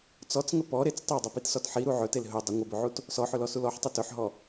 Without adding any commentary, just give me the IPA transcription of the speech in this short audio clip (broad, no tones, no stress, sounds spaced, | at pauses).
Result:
t͡s ɔ t͡s ŋ ə p ɔ ɾ e t͡s tˤ e dˤ ɘ p i t s ɔ t ħ i ɾ u ʕ ɵ t e l ɦ ɵ dˤ ə ŋʷ ə b ɵ ʕ u t | s ɔ ħ ɵ l ɔ s u l ɔ ħ tˤ ɘ t ɵ ħ ɦ ɔ